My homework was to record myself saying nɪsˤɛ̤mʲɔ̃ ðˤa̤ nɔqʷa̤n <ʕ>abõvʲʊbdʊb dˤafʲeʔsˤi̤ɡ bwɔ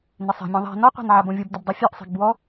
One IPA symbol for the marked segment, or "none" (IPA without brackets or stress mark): ʕ